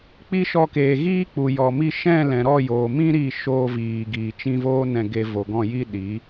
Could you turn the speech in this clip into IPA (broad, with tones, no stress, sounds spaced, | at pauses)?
k͡p i˧ ʃ ɔ˧ k eː˨ ɣ iː˦ k͡p u˨ j ɔ˨ m i˧ ʃ ɛ̃˦˨ l ɛ̃˨ ɾ ɔ˦˨ j oː˨ m ĩ˦ ɾ i˦˨ ʃ oː˧ v iː˨ ɡ iː˨ t͡ʃ ĩ˧ v oː˦ n ɛ̃˧ ɡ e˧ v o˨ ɡ ɔ̃˦˨ j i˦ ɗ i˨˦